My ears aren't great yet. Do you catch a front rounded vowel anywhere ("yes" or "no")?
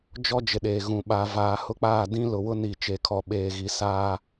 no